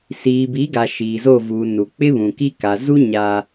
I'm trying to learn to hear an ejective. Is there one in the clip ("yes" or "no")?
no